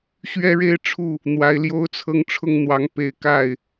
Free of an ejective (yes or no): yes